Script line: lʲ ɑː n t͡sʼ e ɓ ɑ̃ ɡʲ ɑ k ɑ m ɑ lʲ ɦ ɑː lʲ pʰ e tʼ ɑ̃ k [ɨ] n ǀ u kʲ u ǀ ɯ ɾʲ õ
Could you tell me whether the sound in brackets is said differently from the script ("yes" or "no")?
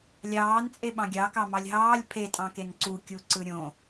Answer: yes